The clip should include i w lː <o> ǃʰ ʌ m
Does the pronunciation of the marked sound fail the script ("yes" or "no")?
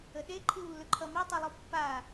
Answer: yes